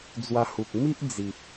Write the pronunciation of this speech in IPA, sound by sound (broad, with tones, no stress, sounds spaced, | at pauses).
d͡z w a˧ h u˨ k̚ m i˦ ʔ d͡z i˨ p̚